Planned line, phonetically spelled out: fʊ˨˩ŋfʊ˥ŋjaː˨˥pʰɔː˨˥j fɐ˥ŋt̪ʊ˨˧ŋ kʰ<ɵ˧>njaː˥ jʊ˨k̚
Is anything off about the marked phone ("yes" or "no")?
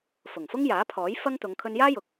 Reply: no